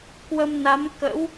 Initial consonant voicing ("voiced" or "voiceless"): voiceless